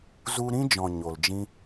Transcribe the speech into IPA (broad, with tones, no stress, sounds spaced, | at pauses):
z u˧ ɾ ĩ˦ d͡ʒ ɔ̃˨ ɲ o˨ l d͡ʒ ĩ˦